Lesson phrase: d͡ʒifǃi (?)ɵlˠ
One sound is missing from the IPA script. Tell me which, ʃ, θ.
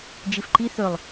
θ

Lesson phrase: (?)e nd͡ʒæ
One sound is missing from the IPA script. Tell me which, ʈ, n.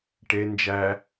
ʈ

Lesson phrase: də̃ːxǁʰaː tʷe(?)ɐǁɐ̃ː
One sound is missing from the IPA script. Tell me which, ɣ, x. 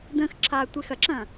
x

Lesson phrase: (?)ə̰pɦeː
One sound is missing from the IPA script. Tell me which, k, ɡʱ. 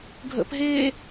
ɡʱ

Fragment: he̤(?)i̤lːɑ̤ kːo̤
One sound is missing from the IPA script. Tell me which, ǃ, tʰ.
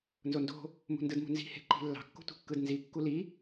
ǃ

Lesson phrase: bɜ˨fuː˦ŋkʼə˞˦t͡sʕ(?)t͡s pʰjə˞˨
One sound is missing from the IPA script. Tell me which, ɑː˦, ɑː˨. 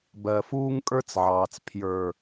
ɑː˨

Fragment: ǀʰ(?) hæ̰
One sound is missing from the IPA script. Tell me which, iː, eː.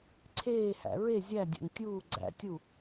eː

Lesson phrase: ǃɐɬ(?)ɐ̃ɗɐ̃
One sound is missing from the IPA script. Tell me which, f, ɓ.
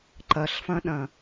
f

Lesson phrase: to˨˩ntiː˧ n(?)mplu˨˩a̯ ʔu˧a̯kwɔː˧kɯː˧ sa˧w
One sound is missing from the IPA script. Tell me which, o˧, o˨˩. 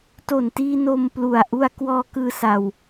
o˧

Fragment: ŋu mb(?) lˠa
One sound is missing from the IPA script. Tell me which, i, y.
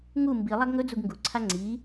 i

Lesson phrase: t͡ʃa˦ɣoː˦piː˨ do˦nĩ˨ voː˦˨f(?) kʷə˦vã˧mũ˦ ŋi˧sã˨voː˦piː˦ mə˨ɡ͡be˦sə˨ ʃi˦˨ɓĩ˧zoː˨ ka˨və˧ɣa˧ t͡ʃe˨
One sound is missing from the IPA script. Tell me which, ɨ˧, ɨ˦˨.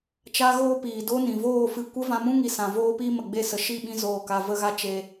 ɨ˧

